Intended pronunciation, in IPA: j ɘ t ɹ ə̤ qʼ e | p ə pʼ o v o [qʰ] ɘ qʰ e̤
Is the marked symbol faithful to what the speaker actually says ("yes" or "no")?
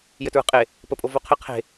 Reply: yes